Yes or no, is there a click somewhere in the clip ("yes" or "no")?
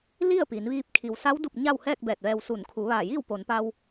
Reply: no